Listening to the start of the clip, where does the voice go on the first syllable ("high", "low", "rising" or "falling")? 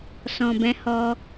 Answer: low